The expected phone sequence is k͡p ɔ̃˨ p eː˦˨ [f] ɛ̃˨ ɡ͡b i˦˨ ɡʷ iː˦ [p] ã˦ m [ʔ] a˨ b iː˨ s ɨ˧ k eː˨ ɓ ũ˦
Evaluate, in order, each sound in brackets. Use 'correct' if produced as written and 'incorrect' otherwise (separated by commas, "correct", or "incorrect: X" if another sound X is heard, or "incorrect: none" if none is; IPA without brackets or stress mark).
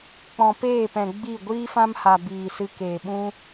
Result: incorrect: p, incorrect: f, incorrect: h